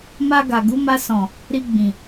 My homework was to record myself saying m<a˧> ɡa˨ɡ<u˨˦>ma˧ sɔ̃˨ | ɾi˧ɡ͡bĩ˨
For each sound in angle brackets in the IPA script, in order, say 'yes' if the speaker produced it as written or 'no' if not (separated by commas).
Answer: yes, yes